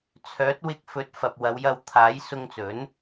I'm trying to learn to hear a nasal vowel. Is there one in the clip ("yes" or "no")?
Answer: no